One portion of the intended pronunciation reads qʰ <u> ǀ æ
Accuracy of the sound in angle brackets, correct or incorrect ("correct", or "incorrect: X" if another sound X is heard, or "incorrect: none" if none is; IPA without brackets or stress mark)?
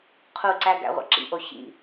correct